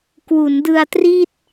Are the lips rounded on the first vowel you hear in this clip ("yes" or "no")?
yes